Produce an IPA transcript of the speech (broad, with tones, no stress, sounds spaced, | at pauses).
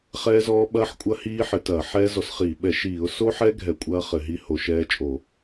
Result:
χ ɛː˦˥ z ɔː˦˥ ɓ ɐː˦˥ ħ kʷʼ ɐ˦˥ h iː˦˥ ħ ɘ˧˩˧ t ɐː˧˩˧ ħ ɛː˦˥ z ɔ˧˩˧ s χ iː˧˩˧ ɓ ɛ˧˩˧ ʃ iː˧˩˧ ʊ̯ s o˦˥ ħ ɛ˦˥ ɡʱ ɛ˧˩˧ kʷʼ ɐː˦˥ χ ɘ˧˩˧ ɦ i˦˥ h o˧˩˧ ʃ ɛː˦˥ t͡ʃʼ o˧˩˧